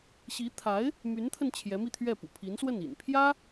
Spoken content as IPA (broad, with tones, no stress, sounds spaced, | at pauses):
ɕ i˧˥ t̪ʰ a˧˥ ɪ̯ | m y˧˥ n t̪ʰ ə˧ n t͡ɕʰ j ɛ˧˥ m i˧ t̪ʰ ɥ ɛ˥˩ p ṵ˨˩ pʰ i˧˥ n s w ə˥˩ n ḭ˨˩ n pʰ j ä˥